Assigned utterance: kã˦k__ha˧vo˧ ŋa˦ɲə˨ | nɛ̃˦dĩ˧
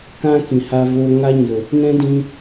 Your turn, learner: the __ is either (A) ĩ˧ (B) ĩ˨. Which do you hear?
B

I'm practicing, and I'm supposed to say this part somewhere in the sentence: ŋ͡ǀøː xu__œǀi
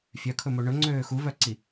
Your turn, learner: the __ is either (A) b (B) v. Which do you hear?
B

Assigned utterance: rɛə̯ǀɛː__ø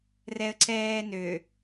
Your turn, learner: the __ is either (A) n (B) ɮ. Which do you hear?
A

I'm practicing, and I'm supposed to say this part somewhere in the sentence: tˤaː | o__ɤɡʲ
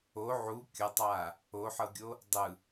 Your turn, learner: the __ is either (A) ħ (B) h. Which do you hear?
A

